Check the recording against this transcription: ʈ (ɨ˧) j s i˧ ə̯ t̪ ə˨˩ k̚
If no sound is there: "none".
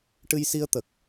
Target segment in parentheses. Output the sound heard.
ɨ˧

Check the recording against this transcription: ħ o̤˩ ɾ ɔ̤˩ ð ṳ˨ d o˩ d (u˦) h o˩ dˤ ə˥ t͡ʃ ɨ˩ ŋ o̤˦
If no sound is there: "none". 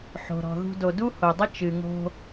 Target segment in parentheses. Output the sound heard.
u˦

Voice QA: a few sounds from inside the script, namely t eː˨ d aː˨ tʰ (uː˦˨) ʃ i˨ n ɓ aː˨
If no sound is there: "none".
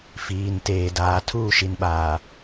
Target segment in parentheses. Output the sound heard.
uː˦˨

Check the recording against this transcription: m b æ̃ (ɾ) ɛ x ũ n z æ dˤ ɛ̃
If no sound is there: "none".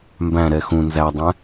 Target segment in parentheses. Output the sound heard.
ɾ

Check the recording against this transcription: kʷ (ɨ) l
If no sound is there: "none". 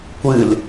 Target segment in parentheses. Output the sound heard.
ɨ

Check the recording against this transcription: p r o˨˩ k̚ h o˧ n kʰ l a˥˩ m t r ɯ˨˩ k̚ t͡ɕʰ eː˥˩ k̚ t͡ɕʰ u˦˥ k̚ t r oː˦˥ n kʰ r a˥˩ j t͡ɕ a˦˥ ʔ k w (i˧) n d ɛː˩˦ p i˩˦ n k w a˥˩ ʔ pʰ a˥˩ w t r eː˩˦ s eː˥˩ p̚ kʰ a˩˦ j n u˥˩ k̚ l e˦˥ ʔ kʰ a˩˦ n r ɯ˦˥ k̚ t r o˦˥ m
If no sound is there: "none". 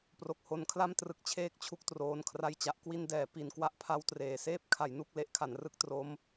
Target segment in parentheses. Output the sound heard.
i˧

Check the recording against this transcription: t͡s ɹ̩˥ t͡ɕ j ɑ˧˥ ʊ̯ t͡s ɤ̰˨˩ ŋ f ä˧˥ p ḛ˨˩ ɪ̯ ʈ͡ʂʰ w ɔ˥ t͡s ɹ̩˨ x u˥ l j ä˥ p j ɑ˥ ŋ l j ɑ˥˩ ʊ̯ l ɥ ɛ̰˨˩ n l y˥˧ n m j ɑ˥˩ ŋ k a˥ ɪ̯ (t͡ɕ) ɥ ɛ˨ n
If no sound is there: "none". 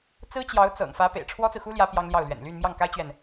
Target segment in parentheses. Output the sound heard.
t͡ɕ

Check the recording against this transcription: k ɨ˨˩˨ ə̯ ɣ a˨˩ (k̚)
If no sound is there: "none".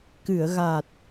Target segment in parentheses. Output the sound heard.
t̚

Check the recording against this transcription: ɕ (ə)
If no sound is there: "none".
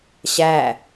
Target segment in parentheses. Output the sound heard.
æ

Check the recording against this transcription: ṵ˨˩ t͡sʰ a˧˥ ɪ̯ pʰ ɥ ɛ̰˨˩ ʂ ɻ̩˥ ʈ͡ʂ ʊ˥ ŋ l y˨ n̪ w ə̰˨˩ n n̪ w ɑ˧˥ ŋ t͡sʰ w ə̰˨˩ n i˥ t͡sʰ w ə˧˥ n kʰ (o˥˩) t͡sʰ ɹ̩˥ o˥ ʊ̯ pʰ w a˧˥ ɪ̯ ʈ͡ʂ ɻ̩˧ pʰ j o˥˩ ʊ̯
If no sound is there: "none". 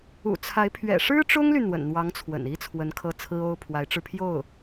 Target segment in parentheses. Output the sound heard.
ɤ˥˩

